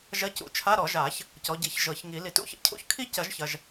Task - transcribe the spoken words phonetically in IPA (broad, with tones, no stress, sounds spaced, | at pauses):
ʒ ɐ˧˥˧ c ṵ˨˩˦ t͡ʃʰ a˧˥˧ ɾ ɔ˨˩˦ ʒ a˨˩˦ ç | c ɔ˨˦ ɟ i˨˦ ç ʒ ɤ˨˩˦ ç ŋ i˨˩˦ l i˨˩˦ t ṵ˥˧ ç ə̰˧˥˧ cʰ ṵ˧˥˧ ç kʰ i˥˧ c ɐ˨˩˦ ʒ ç ɐ˨ ʒ